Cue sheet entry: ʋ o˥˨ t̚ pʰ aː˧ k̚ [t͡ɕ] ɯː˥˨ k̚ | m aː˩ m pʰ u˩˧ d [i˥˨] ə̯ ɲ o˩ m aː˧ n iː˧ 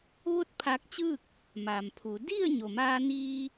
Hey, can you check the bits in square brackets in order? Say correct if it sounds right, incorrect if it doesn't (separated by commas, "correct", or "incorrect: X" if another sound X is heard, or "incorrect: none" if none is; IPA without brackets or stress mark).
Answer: correct, correct